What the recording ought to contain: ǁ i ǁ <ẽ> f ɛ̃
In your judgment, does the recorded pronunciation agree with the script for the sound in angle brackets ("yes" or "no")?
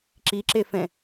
no